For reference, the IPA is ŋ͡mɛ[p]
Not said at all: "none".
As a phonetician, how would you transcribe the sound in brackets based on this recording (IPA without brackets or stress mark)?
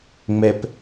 p